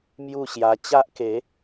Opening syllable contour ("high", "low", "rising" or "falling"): falling